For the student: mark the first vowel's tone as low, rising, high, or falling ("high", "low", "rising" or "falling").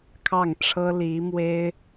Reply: falling